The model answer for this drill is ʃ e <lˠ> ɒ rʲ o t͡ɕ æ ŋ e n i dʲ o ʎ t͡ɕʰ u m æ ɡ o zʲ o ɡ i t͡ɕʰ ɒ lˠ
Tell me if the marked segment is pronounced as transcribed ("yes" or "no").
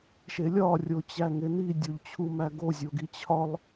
no